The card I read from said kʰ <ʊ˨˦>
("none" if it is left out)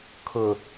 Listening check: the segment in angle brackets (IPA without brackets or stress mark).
ʊ˨